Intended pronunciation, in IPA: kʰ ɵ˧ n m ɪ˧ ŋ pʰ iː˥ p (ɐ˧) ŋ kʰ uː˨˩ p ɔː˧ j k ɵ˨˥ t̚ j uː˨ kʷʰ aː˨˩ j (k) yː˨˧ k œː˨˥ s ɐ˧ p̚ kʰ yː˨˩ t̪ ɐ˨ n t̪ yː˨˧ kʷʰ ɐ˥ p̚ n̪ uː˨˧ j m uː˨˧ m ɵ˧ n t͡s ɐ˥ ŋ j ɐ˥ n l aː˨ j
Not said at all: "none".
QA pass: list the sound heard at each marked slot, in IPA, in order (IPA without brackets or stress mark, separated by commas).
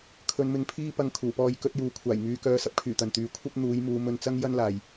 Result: ɐ˧, ŋ